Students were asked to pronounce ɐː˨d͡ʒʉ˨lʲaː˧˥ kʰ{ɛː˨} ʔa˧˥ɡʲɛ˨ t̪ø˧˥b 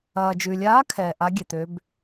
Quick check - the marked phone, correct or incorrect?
correct